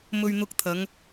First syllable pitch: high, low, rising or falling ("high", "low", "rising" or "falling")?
low